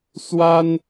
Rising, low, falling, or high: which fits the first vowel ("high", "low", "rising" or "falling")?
high